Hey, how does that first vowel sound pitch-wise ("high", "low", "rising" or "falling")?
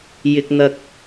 high